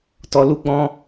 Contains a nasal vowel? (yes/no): yes